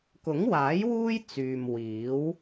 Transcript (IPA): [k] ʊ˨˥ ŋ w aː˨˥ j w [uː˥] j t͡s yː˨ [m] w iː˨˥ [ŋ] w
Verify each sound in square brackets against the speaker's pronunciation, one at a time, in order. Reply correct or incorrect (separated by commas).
correct, correct, correct, incorrect